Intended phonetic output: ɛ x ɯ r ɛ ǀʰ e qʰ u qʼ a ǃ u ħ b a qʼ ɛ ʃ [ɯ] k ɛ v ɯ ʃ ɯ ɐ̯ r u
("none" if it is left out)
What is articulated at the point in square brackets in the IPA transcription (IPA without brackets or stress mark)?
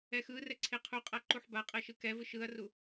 ɯ